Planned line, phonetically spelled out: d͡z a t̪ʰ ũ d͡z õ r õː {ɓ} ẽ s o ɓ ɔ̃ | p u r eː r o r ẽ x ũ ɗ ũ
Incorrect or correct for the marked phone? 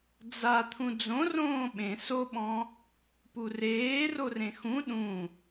correct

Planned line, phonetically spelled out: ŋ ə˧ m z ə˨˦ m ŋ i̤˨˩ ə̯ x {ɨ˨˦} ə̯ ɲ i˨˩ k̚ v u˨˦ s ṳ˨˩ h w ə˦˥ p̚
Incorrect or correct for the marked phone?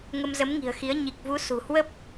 incorrect: i˨˦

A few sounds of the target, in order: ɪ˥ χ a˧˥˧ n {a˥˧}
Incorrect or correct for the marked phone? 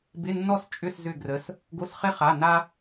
incorrect: a˥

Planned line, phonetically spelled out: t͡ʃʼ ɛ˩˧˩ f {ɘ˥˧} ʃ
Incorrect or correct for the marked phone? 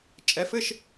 correct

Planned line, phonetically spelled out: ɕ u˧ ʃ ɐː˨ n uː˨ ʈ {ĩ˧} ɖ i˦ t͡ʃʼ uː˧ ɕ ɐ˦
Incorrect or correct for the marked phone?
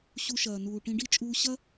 correct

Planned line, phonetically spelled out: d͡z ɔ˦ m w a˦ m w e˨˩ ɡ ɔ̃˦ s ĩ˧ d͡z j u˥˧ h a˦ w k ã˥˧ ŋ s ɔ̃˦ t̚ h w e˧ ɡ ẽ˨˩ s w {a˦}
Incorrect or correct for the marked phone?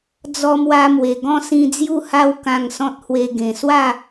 incorrect: a˥˧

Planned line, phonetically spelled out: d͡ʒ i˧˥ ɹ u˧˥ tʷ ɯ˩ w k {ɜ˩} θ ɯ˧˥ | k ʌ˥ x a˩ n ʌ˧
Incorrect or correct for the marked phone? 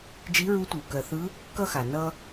correct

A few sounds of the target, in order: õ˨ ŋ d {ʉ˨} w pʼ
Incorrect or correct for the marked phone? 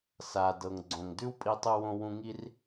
incorrect: ʉ˦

